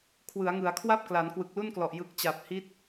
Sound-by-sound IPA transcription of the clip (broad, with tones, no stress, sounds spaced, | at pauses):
kʰ w ɯ˩˦ a̯ ŋ ɯ˩˦ a̯ kʰ w a˥˩ p̚ k l a˩˦ n k w ɯ˨˩ k̚ l u˥˩ n k l ɔ˨˩ ʔ j ɯ˨˩ k̚ t͡ɕ a˨˩ p̚ h i˦˥ t̚